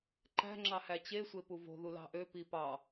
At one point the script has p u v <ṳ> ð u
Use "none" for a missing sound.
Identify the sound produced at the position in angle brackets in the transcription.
o̤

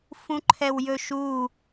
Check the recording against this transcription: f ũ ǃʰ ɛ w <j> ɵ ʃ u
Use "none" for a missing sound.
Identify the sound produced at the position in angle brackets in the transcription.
j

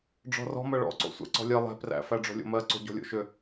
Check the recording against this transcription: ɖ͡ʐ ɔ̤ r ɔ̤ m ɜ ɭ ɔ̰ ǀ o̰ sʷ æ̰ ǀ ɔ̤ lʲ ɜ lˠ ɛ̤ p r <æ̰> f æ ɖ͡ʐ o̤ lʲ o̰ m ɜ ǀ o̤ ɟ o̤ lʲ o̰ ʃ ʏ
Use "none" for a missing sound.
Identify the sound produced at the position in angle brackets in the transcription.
æ̰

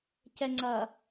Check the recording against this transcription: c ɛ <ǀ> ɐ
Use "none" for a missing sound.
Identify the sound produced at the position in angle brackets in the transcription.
ŋ͡ǀ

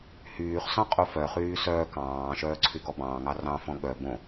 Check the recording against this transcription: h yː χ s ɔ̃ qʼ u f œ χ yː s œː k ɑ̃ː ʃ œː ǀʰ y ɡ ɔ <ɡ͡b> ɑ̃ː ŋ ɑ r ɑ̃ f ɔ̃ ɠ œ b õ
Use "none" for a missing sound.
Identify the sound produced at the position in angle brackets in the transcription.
b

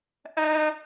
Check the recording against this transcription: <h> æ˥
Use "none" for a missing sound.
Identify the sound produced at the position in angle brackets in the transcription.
ʔ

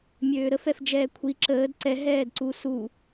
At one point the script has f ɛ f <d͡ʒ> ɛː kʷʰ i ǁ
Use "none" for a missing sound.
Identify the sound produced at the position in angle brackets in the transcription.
d͡ʒ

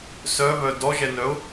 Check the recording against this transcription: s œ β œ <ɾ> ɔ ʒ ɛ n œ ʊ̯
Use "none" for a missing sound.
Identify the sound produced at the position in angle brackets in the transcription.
d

